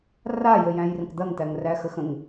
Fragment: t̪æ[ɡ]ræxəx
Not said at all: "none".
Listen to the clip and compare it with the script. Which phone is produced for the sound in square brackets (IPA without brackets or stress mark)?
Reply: ŋ